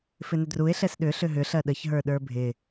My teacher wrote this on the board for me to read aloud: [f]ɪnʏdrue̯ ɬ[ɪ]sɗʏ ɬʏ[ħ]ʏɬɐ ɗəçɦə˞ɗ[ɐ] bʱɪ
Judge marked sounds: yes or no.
yes, no, no, no

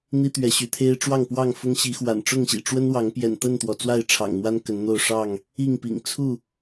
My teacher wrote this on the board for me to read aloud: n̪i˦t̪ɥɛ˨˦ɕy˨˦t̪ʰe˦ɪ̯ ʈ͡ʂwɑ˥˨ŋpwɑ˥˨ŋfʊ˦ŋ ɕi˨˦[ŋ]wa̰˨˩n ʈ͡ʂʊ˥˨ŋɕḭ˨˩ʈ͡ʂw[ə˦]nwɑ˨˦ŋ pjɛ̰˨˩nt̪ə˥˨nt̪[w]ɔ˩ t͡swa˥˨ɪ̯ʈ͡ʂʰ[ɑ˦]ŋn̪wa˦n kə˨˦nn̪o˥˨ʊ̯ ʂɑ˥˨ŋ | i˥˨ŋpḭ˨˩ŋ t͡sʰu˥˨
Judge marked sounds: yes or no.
no, yes, yes, no

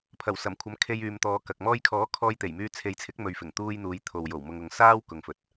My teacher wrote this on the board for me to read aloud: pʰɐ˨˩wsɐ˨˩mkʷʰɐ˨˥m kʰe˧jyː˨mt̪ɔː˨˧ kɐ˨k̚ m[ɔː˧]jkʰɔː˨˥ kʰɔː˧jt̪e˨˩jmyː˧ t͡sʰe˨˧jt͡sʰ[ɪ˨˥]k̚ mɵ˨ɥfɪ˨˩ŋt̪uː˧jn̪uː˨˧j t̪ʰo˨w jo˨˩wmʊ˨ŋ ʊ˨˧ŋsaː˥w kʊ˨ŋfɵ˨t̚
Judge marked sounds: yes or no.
yes, yes

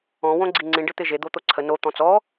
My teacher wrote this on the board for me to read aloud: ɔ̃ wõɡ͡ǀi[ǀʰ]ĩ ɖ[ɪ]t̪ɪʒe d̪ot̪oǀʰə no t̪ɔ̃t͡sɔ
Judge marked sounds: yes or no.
no, yes

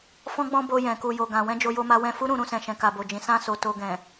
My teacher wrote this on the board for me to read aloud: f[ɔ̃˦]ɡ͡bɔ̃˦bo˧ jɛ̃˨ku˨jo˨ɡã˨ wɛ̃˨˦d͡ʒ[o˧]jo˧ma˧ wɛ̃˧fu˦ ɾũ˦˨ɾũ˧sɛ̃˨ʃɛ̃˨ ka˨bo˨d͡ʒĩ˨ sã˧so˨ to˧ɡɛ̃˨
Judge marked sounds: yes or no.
yes, yes

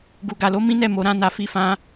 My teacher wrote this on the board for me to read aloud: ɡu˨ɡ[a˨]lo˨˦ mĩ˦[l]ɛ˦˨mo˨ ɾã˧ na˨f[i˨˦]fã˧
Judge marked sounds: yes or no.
yes, no, yes

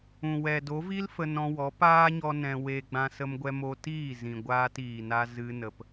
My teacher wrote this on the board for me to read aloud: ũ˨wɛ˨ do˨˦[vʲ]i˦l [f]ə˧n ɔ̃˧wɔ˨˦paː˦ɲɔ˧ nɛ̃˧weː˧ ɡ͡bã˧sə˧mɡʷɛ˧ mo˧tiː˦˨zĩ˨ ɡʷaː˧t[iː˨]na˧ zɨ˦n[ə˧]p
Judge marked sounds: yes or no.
no, yes, yes, yes

